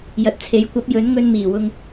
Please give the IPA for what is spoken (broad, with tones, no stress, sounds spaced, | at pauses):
j ɐ˨ t̚ t͡sʰ e˨˥ j kʷ ɐ˨˥ p̚ j ɵ˨˥ n ŋ ɵ˧ n m iː˨˩ w ʊ˧ ŋ